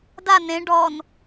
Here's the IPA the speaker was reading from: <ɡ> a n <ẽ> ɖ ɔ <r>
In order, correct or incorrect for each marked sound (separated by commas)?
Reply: incorrect, correct, incorrect